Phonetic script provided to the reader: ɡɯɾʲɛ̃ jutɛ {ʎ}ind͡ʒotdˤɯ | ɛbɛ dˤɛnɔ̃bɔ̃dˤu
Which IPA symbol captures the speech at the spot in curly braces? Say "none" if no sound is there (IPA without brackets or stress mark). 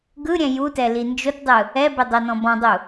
l